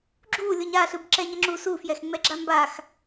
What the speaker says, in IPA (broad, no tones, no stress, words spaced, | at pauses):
ɡ͡ǁu lʲoɲaɬɯb ǁɛɲʌŋ͡ǁu sufjɛx ŋ͡mɛɡ͡ǁambax